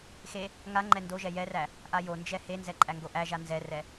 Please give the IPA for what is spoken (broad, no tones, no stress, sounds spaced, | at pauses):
x e | ŋ a ŋ͡ǃ ɛ n d o ʒ ɛ j ɛ r æ | ʔ a j o n d͡ʒ ɛ h e n z ɛ ǃʼ æ ŋ ɡ o ʔ æ ʒ a n z ɛ r ɛ